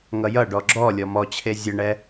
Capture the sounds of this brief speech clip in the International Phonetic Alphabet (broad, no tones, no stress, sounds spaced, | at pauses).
ŋ ʌ j ʌ ɖ ɔ ɡ͡ǁ ɔ lʲ ɔ m ɔ t͡ɕʰ e zʲ ə ɳ ɛ